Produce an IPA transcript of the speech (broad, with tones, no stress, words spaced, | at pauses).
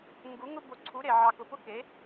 ŋɡu˧˥ŋʊ˥bo˧˥ǀʰu˧˥ ɾe˩˧ʕɑ˧ kʊ˧pʊ˥ke˧˥